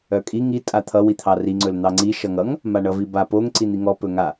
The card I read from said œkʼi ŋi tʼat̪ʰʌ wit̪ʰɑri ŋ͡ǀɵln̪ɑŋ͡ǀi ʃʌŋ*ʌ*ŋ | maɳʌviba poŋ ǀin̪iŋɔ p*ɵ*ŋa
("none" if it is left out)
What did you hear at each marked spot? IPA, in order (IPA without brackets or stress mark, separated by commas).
ʌ, ɵ